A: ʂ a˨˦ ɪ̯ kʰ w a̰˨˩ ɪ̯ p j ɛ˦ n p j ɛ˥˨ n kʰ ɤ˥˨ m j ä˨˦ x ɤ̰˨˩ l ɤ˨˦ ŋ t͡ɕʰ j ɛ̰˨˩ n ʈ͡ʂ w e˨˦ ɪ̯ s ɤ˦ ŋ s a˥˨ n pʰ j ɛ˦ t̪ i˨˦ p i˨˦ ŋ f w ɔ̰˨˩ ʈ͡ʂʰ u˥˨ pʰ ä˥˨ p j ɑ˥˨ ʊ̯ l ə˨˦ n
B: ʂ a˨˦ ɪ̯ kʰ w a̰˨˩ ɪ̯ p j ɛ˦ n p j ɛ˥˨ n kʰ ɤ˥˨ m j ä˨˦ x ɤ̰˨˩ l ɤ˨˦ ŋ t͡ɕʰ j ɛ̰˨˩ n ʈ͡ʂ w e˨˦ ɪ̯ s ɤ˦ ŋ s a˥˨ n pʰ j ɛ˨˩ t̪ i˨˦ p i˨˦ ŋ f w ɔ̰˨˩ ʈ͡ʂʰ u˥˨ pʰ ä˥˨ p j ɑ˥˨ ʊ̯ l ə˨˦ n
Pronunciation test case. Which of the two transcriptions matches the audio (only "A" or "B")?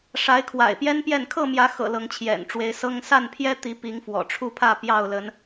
A